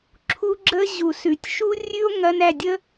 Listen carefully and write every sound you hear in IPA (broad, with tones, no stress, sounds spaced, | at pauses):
ǁʰ u˦ ɡ͡ǁ ə˦ ʑ u˨ s ʉ˨ tʲ ʃ u˦ rʲ ʉ˦ o̯ ŋ ɐ˦ n æ˦˨ dʲ ə˦